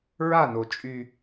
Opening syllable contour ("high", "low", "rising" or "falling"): falling